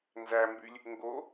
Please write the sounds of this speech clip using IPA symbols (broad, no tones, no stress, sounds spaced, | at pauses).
n z æ m b y lʲ | ŋ ɡ o